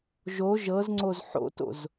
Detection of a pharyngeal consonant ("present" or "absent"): present